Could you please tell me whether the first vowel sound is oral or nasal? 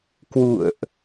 oral